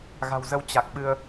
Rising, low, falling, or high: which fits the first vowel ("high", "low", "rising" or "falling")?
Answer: low